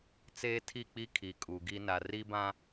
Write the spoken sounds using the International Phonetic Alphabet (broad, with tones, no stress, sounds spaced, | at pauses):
t͡s eː˦ tʰ i˦˨ k͡p i˦ kʰ i˨ kʼ u˨ ɡ i˦ n a˨ r i˦ b ã˦